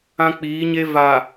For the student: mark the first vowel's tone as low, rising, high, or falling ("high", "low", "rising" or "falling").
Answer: high